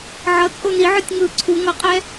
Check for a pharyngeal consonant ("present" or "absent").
present